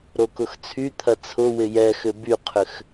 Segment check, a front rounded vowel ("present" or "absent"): present